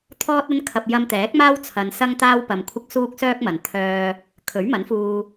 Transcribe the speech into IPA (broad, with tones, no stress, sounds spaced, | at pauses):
t̪ʰ ɔː˥ t̚ ɐ˥ n kʰ ɐ˧ p̚ j ɐ˧ m t̪ ɛː˨˥ k̚ m aː˥ w t͡sʰ ɐ˧ n s ɐ˥ ŋ t̪ aː˥ w p ɐ˧ m kʷʰ ɪ˥ k̚ s uː˥ k̚ s œː˥ k̚ m ɐ˨ n t̪ʰ œː˥ | kʰ ɵ˨˥ ɥ m ɐ˨˥ n f uː˧